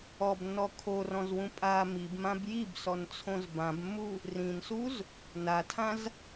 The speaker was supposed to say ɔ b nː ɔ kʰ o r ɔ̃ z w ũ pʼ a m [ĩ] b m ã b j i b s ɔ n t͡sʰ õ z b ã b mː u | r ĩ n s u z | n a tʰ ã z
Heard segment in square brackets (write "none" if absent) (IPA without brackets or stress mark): i